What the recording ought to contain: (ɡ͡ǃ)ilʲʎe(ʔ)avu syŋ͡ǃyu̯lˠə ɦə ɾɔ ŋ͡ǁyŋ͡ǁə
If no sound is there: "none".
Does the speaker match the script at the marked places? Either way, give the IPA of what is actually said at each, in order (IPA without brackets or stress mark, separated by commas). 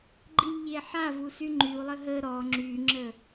ɡ͡ǃ, ħ